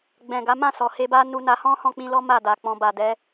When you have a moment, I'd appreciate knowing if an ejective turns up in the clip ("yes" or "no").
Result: no